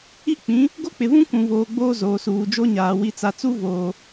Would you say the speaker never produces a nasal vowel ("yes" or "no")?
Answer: no